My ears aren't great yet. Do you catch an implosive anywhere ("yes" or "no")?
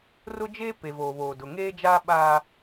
yes